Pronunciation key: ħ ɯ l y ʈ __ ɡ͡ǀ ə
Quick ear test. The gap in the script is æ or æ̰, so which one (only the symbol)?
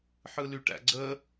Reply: æ̰